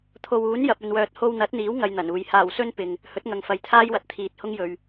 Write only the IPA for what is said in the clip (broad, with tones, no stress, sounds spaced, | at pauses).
t̪ʰ o˨ w uː˨˥ n j ɐ˨ p̚ ɵ˨ n w œː˨ t̚ h o˧ w n̪ ɐ˨˥ t̚ n̪ iː˨˥ w ŋ ɐ˧ j n̪ ɐ˨˩ n uː˨ j h aː˨˩ w s ɵ˧ n p ɪ˨ ŋ | h ɵ˨˥ t̚ ŋ ɐ˨ ŋ f ɐ˨ j t̪ʰ aː˥ j w ɐ˨ t̚ t̪ʰ iː˨ t̚ h ʊ˥ ŋ j ɵ˨ ɥ